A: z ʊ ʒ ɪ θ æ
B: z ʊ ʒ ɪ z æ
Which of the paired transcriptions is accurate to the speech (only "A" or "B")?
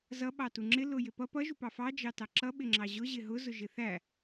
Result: A